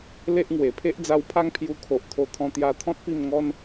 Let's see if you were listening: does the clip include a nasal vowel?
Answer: yes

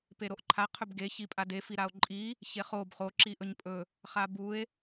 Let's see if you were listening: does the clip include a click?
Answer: yes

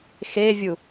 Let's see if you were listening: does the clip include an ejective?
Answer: no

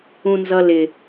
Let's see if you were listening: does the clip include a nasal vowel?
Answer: yes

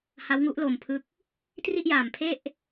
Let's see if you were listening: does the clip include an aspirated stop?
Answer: yes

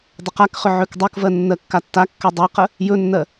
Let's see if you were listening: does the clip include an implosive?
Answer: no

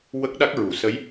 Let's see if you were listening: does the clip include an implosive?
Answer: yes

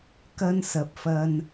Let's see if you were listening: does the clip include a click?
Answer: no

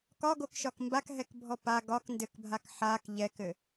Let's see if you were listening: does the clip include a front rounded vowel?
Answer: no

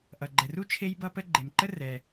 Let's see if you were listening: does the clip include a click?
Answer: yes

